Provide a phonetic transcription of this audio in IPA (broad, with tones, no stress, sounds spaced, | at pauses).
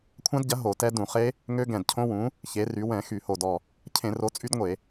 kʷʰ ã˦˥ d ɟ ɐ˨˥ ɦ o˧˩˧ t ɛ˦˥ d ũ˧˩˧ χ e˦˥ | ŋ ø˦˥ ɡ ɛ̃˧˩ d cʰ õ˦˥ w ũ˨˥ | ç e˨˥ r y˨˥ w ɛ̃˧˩˧ x y˧˩˧ h o˧˩ d ɔ˧˩ | cʰ ẽ˧˩˧ r o˨˥ t͡sʼ y˦˥ d ŋʷ e˧˩˧